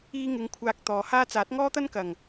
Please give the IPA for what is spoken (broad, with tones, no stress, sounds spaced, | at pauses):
iː˧ ŋ ɪ˨˧ ŋ kʷʰ aː˧ k̚ t̪ ɔː˨ h aː˥ t͡s aː˨˥ t̚ ŋ ɔː˥ t̪ ɐ˥ n k ɐ˨˩ ŋ